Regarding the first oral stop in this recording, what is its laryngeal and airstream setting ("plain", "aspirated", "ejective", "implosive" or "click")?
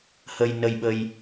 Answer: implosive